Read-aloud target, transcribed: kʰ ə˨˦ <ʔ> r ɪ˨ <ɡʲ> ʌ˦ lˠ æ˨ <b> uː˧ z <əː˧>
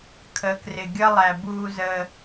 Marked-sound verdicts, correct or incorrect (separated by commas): incorrect, correct, correct, correct